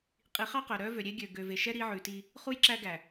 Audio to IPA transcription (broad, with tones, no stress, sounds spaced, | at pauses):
qʼ i˨˦ χ ɑ˦ q œ˨ ɾ œ˦ v ø˨ ɾʲ e˦ ɡʲ ø˨ ɡ ø˨ v e˨ ʃ ɛ˦ ɾ i˦ ʕ ʉ˨ t i˦ | χ u˦ j ǁ æ˦ ɡ æ˨